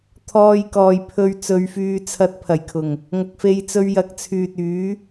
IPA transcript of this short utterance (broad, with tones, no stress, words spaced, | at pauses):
t̪ʰɔː˧jkɔː˨j pʰɵ˧ɥ t͡sɵ˨˧ɥfyː˧t͡sʰɐ˧t̚ pʰɐ˨˩jkʰʊ˨˩ŋ | ŋɐ˨k̚fe˧jt͡sɵ˧ɥ jɐ˨k̚t͡sʰyː˨t̚yː˨˥